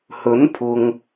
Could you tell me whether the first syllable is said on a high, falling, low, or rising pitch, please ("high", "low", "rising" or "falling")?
rising